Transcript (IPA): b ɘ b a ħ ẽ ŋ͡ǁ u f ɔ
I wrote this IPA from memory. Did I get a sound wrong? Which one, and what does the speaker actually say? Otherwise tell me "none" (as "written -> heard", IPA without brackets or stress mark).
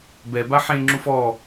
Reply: ɘ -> ɛ